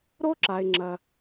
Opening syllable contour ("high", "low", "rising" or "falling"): high